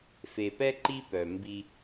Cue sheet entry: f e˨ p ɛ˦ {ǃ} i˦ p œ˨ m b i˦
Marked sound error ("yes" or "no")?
no